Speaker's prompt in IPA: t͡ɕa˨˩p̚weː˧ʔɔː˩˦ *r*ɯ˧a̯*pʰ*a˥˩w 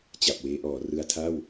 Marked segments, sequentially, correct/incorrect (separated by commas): correct, incorrect